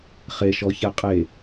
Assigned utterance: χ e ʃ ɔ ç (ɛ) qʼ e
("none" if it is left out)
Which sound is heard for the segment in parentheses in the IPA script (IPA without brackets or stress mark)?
ɛ